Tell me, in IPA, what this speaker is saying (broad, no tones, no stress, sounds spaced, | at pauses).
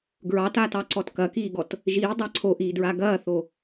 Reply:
ɡ ɹ ɑ t aː t ɑ ǀ ɔ t k ɐ k iː ɡ ɔ t | ʒ iː dˤ ɑ ǀʰ o ʔ iː d ɹ a ɡ ɐː θ o